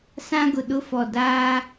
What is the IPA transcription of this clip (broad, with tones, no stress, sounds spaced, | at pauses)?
s ã˦ ɡ ʊ˨ ɗ ʊ˦ f ɔ˨ d aː˦